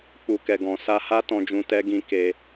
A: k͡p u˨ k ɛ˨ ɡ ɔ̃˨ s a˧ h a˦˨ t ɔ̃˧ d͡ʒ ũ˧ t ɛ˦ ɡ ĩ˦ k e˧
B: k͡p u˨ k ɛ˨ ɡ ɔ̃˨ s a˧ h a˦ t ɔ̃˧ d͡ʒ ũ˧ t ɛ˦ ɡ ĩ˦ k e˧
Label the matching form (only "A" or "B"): B